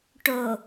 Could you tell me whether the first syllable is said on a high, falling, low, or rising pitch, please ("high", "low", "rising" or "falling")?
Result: low